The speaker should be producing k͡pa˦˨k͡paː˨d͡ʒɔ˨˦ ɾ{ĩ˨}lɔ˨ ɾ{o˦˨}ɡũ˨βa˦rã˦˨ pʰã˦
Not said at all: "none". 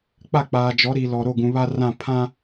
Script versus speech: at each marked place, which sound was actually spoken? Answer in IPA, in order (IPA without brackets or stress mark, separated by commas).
i˨, o˦˨